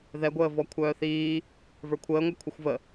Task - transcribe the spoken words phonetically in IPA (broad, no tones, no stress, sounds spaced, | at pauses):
ð ɛ ɡʷ əː v ɔ kʷʰ œː θ iː | v ə˞ kʷʰ əː ŋʷ œ kʷʰ ə xʷ v ə